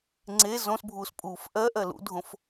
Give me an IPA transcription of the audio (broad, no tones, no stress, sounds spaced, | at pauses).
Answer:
ŋ͡ǀ e z õ s bʱ uː s pʼ uː f ʔ ɜ ʔ ɜ l ṵ dʱ õ f